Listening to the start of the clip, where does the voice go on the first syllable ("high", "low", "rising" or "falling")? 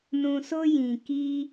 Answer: low